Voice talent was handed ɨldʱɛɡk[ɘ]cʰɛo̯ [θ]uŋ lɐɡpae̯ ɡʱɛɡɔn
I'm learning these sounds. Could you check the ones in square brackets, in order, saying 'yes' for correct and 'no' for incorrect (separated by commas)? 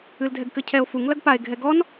yes, no